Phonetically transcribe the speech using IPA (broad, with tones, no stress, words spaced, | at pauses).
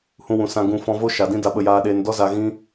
hũ˧wũ˨sã˧ ɡũ˧ fɔ̃˧vo˦ ʃa˨dĩ˦ da˧ɓə˧jaː˧ɗeː˧n dɔ˦za˧ɣĩ˦